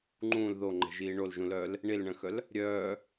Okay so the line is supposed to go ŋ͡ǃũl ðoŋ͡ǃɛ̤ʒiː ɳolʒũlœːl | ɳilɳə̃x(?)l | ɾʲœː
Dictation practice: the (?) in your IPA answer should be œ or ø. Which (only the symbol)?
œ